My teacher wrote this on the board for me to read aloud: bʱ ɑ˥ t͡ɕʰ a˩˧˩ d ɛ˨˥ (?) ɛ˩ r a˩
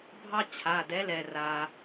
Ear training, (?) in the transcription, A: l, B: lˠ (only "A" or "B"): A